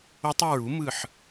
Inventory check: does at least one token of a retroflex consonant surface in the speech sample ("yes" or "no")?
no